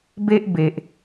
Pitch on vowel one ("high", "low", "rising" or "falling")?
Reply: high